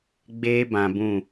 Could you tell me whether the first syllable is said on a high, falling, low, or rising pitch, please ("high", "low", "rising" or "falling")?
high